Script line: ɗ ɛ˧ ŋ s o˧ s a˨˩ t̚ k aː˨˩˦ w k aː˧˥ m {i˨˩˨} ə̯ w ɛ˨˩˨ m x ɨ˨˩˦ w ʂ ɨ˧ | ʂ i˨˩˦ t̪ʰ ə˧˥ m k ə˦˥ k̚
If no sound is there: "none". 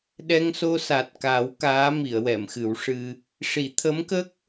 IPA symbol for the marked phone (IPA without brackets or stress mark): i˨˩˨